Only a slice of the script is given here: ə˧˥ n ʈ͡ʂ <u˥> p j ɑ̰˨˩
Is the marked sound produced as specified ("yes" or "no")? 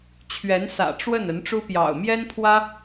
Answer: yes